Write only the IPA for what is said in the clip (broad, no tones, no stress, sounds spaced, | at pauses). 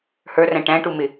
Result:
h ə˞ r æ̃ ʈ æ̃ ʈ u m ɪ